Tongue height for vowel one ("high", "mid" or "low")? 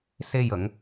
mid